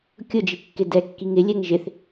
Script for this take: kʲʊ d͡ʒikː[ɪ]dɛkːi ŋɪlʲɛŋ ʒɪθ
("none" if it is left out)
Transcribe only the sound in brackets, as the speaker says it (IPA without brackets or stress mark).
ɪ